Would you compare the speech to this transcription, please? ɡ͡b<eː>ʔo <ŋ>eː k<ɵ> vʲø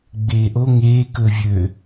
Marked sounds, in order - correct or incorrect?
correct, correct, correct

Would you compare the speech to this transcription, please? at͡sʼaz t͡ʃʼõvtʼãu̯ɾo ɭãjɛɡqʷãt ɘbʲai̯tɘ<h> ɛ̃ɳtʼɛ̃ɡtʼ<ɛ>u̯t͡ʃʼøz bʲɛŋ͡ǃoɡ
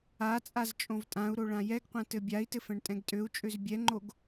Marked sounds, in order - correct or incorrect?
incorrect, incorrect

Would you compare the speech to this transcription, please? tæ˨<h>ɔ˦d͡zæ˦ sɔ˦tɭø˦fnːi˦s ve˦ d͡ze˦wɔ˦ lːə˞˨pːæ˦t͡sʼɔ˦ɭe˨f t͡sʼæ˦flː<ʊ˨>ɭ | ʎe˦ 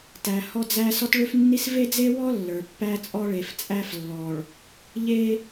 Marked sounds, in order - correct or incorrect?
correct, incorrect

